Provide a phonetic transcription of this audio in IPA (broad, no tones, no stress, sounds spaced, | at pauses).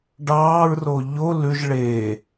ɖ ɑː ɹ r o ʎ o l ʉ ʒ ɭ eː